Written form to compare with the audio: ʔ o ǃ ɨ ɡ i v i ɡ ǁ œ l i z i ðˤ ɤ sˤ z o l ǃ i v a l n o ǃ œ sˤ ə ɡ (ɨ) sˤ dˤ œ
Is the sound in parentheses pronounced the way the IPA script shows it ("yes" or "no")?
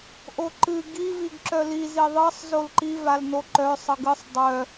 yes